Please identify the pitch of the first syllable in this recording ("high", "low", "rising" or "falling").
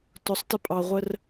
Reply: rising